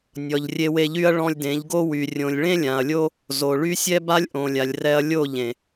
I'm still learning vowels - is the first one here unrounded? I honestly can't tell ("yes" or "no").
no